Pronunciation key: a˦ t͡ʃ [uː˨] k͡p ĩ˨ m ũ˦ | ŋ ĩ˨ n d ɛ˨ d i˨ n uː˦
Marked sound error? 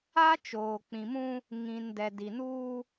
yes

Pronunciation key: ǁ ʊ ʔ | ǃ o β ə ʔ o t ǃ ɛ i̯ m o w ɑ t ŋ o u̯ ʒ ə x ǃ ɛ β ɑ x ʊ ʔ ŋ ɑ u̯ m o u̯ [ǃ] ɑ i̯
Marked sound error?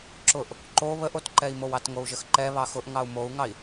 yes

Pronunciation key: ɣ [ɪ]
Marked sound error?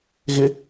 no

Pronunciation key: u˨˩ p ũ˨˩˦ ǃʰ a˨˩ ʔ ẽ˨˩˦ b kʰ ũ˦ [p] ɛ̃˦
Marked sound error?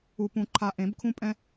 yes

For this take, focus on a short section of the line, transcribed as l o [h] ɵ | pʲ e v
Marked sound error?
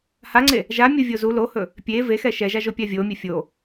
no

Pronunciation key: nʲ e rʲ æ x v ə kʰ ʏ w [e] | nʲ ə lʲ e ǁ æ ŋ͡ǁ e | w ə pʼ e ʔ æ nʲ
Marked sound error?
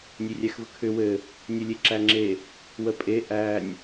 yes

